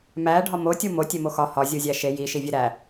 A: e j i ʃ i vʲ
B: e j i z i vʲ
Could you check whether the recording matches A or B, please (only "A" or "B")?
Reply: A